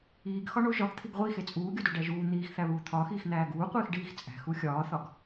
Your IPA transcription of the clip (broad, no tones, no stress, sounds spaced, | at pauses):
iː ɡ x ɒ ɳ o ʒ ɒ ɡ t̪ʰ i ɡ ʁʷ i x e t͡sʼ uː ɡʲ o d o ɖ æ ʒ uː n̪ iː x θ æ β uː t̪ʰ ɒː x iː x n̪ æː ɡ uː qʷ iː x ɖ iː x t͡sʼ æ̤ x u xʲ ɒː θ ɒ ɡ